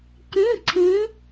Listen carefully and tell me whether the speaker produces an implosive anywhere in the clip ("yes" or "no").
no